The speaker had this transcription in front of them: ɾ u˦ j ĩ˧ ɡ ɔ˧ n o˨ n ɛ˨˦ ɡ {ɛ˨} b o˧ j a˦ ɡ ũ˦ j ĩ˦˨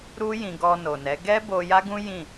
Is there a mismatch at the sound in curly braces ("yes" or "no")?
yes